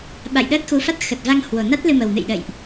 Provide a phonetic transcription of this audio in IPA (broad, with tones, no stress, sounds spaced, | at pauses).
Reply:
ɓ a̰˧˨ j ɗ əː˦˥ t̚ x u˨˦ f a˦˥ t̚ x ə˨˩ t̚ v a˧ ŋ h w o˨˩ n a˦˥ t̚ l ɨ˧ m ə˨˩ w n ɨ̰˧˨ j ɗ ə̰˧˨ j ʔ